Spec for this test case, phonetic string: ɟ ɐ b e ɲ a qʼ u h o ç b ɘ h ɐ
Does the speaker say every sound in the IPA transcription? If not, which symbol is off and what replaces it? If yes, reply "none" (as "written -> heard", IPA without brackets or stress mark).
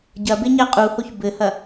none